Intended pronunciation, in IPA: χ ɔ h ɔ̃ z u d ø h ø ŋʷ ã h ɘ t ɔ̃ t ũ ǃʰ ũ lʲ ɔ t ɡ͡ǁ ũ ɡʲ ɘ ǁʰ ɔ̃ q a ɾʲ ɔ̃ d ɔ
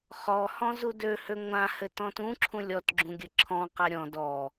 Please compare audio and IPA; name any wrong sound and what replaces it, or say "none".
ǃʰ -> ǁʰ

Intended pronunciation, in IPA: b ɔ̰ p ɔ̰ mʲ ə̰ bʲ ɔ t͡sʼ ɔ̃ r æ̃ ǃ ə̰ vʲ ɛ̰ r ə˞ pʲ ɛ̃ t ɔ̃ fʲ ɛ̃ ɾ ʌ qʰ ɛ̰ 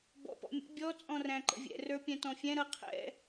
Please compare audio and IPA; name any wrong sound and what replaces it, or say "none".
none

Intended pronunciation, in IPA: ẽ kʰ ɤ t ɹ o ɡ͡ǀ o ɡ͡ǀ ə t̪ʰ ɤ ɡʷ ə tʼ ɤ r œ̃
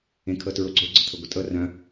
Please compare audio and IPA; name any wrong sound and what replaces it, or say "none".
none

